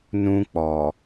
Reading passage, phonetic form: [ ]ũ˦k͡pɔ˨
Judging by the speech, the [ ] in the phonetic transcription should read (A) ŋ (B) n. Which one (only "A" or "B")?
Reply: B